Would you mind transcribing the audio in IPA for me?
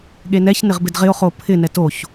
ɠ e n ɛ ç n ɪ ʁ b ɪ d ʁ ɪ o̯ χ o pʰ ɪ n ɛ t o ç

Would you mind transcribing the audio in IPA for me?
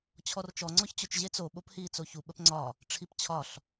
t͡ɕʰ ɔ r t͡ʃ ɔ ŋ͡ǀ ɔ ç t͡ɕ ʊ t͡ʃ ʑ e t͡s o ɓ o p h iː t͡s o ç u ɓ ə p ŋ͡ǀ ɒ | ʈ͡ʂʰ i p t͡ɕʰ ɒ ɬ

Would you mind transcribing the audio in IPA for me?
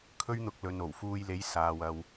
kʰ ɵ˥ ɥ n̪ ʊ˧ k̚ l ɵ˨ n o˨˩ w f uː˧ j l e˨˥ j s aː˨ w ɐ˨ w

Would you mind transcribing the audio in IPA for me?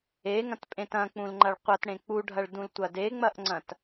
e ŋ ɐ̃ t pʼ ẽ t ɐ̃ k͡p ũ l ŋ͡ǃ ɐ ɭ qʷ ɐ t ɽ ẽ k͡p u ɖʱ ɐ ɭ d ũ l tʷ ɐ d e ŋ͡m ɐ ʔ ŋ͡ǀ ɐ̃ t

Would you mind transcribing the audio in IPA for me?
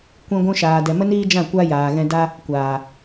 kʷ ĩ˧ ɡʷ ũ˧ ʃ aː˨ d ɛ˨ m ə˦ n iː˦ d͡ʒ ã˦˨ kʷ a˦ j aː˨ ɣ ɛ̃˧ d a˦ | kʷ aː˨

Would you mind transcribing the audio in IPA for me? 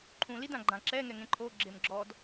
ǃʰ ũ l i d ã ɡ͡ǃ ã ǁ ɛ ŋ ɛ ŋ ẽ ǃʰ o ɡ͡ǁ e m ɡ͡ǁ ɔ d

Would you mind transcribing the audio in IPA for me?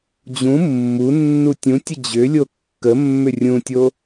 d͡ʑ ũ mː u nː u tʲ ũ tʲ ə d͡ʑ ʏ lʲ o kː ə mː ʏ rʲ ũ tʲ o

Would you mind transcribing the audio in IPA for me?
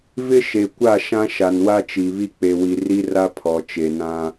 v ɪ˦ ʃ e˨ kʷ a˦˨ ʃ ã˦ ʃ a˨ n w a˦ t͡ʃ i˨ β i˦ k͡p e˨ w i˨ r i˦ r a˦ pʰ ɔ˨ t͡ʃ e˨ n ã˦

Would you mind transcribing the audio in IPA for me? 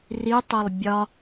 r i tˤ o lˠ bʲ ɒ

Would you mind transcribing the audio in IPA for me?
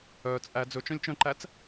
œː t͡sʼ æ d͡z ɵ t͡ʃ œ̃ lʲ t͡ʃ œ̃ ǃ æ t͡s

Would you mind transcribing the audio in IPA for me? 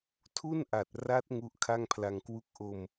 tʰ u˥˩ n ʔ a˨˩ t̚ r a˦˥ t̚ ŋ u˦˥ ʔ kʰ a˥˩ ŋ pʰ l a˧ ŋ k w u˥˩ k̚ ʔ o˧ m

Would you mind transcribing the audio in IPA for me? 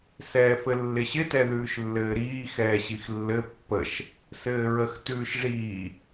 s ɛː f ɘ lː ɪ ɕ ɪ t ɛ ð ʉː ʃ lː ɘː ɾ iː x ɛː ɕ i x lː ɘ pː ə ʃ | s ɘː ɹ ə x t ʉː ʃ ʐ iː

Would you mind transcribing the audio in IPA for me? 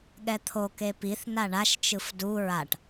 ɠ ɛ t̪ʰ o k e p i θ n a ɳ a ʃ t͡ʃ ɯ f d u ɹ a ʈ

